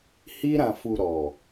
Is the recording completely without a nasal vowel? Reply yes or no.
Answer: no